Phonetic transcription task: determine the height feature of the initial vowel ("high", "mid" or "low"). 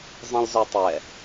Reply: mid